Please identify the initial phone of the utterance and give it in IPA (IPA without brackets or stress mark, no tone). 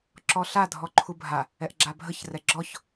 ǁ